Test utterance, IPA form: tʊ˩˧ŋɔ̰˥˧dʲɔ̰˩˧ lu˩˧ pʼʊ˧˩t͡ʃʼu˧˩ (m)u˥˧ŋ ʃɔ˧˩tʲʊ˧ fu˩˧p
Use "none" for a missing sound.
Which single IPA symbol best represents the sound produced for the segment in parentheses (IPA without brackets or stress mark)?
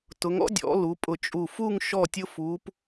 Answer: f